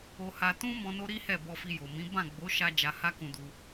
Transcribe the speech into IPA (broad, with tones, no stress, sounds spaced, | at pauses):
o˧ h a˧ t ũ˦ m ɔ̃˧ n o˦ ɾ i˦ h ɛ˦˨ b ɔ˧ f i˧ j o˨ m ĩ˨˦ b ã˦˨ ɡ͡b o˨˦ ʃ a˧ d͡ʒ a˧ h a˦ k ũ˧ d u˧